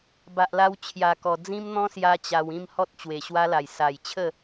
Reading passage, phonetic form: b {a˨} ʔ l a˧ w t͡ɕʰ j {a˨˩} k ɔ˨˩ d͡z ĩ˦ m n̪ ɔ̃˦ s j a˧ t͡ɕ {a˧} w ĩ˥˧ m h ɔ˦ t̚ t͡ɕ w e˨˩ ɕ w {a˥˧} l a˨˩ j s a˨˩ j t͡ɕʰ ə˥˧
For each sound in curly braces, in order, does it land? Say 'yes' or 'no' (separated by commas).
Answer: yes, yes, yes, no